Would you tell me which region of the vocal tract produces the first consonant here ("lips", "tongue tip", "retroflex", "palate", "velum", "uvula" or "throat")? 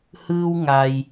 throat